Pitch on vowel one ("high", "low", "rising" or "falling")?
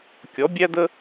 rising